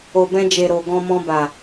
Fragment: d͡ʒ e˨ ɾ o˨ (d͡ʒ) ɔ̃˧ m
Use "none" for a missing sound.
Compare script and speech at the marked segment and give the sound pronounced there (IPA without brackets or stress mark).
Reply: ɡ